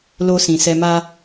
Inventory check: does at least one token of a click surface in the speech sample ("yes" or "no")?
no